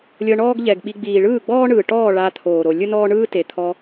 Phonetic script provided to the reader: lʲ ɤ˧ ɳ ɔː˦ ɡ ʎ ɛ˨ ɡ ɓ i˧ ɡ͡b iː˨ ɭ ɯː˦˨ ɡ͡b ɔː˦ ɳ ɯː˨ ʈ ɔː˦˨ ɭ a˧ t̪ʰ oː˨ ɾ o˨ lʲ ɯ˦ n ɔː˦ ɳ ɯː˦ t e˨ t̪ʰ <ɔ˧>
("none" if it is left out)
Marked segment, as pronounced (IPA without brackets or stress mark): ɔ˧